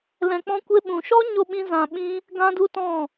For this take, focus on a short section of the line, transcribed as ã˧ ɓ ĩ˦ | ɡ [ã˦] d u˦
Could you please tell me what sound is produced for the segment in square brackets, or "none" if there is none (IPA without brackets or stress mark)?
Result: ã˦